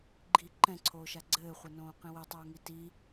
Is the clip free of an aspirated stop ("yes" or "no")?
no